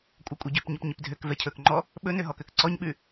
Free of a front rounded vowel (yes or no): no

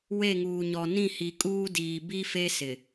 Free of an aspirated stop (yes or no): yes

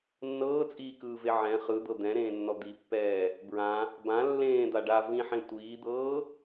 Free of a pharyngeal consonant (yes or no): no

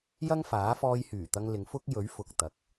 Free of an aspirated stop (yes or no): yes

